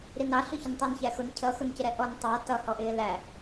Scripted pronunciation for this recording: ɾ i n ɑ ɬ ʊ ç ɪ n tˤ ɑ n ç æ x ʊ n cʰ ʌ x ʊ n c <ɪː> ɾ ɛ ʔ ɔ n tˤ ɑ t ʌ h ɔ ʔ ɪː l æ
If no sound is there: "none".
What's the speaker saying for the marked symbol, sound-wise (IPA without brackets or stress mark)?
ɪ